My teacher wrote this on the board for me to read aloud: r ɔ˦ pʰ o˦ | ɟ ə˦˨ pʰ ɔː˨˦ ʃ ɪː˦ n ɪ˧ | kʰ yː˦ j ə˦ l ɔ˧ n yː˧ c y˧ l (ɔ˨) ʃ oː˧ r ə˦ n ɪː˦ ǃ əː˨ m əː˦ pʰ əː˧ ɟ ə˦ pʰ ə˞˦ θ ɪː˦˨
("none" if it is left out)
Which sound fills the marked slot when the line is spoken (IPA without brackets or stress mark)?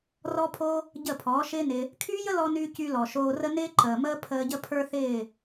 ɔ˨